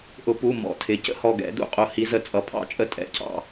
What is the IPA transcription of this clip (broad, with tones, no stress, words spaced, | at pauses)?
ʔʊ˨˩˦pu˩˧˩ mɔ̰˨˩˦tʰɪ˩˧˩ cə̰˥˩ hɔ˧˩ɡɛ̰˨˩˦dṵ˨˩˦ qʼʊ˨˦ hi˨˦ zə˨˩˦t͡sʼʌ˩˧˩ pʰɑ̰˨˦t͡ʃʼə˧˩ tʼɛ̰˩˧˩cʰɑ̰˥˩